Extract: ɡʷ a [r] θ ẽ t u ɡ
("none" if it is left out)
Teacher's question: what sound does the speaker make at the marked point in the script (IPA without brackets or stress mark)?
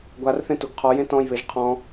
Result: r